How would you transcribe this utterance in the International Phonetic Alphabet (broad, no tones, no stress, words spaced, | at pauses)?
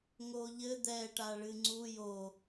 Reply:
ŋoʎɘ d̪ɛ ʈaɭɨŋ͡ǀu jo